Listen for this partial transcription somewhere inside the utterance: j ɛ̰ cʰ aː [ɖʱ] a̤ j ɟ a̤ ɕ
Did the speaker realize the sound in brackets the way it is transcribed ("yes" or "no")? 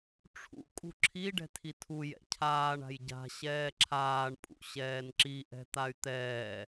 no